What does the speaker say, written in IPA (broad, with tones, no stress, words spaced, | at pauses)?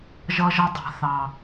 ʒʌ˧ʒʌ˧dˤa̤˨ θɑ˨